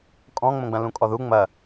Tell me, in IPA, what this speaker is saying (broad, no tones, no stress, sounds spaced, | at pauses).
kʼ ɔ̃ ŋ͡m õ ɡ͡b ɐ̃ l ũ kʼ ɔ ð u ŋ͡m ɐ